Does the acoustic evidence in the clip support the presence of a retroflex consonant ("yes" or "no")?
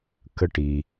yes